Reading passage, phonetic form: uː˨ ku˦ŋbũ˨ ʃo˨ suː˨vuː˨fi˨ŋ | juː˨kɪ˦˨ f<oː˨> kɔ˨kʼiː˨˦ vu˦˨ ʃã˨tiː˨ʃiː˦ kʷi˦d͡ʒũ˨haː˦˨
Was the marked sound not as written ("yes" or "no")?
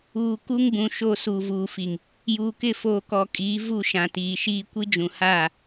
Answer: no